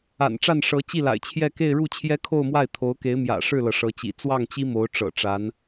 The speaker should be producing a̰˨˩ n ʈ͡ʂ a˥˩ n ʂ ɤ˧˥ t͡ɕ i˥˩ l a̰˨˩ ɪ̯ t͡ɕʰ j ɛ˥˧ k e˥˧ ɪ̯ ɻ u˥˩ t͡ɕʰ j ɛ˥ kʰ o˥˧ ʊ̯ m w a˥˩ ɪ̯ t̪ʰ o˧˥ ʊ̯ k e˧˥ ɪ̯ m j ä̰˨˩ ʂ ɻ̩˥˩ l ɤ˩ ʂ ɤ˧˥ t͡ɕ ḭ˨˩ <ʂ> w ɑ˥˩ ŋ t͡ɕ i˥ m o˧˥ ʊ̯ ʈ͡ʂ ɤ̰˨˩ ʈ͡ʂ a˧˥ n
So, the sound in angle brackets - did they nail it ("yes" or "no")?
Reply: no